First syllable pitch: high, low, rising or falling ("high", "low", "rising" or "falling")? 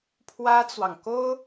high